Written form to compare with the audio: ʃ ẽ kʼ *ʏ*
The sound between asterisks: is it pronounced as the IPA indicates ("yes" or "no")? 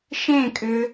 yes